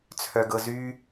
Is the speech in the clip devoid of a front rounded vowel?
no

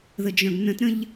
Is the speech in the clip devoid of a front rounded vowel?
no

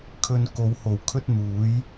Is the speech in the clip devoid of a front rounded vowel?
yes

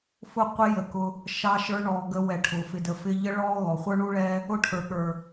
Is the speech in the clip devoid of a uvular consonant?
no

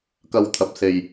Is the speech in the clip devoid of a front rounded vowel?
yes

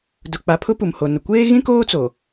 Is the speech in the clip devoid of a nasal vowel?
no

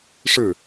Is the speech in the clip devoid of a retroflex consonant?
no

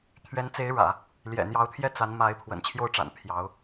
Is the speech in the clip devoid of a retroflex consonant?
no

